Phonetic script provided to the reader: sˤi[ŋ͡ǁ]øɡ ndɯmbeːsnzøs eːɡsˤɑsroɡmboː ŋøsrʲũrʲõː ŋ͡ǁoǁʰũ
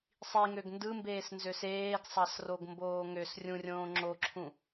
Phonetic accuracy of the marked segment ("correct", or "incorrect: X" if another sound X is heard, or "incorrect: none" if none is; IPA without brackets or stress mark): incorrect: ŋ